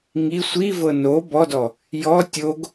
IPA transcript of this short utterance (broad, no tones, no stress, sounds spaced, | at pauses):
ŋ i sʷ i v ɤ n o b ɔ d ɔ | j ɔ tʲ o ɡ